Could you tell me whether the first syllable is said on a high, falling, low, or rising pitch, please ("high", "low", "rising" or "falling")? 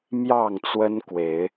falling